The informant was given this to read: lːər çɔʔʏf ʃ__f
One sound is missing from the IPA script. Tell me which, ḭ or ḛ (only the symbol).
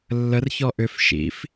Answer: ḭ